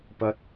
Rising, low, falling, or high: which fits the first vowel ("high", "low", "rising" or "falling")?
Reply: high